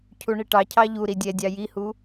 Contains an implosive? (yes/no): no